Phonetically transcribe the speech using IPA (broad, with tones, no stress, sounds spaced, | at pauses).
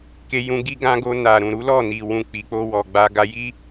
k e˧ j ũ˧ ɡ i˧ ɡ ã˧ ɡ o˧ n a˨ ɾ ũ˨ ɾ u˨˦ l ɔ˦˨ n i˨ w ũ˨ k͡p i˨˦ k͡p o˧ w ɔ˨ ɡ͡b a˧ ɡ a˧ j i˦